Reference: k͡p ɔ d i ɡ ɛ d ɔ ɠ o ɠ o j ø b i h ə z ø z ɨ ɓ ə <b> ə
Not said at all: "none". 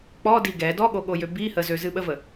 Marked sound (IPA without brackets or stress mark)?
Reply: v